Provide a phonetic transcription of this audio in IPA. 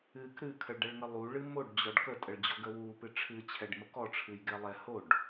ɨ k ɾ ɨ kʰ ə ɭ ɖ ɛ ɭ ŋ ə lˠ u ɭ ɨ m o ɖ d͡ʑ ɔ ɖ k ə tʼ ə ɭ d͡ʑ ɔ ɡ ə w u p ɨ ʈ͡ʂʰ ɨ t͡ɕʰ ɛ ɖ m ə k ɔ ʈ͡ʂʰ ɨ j ɡ ɛ lˠ ɛ h o ɖ

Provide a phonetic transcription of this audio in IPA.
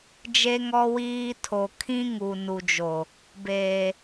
d͡ʒ e˦ ŋ ɔ˦ w iː˦ tʰ o˨ kʰ ĩ˦ ŋ u˨ n u˨ d͡ʒ o˨ | b eː˨

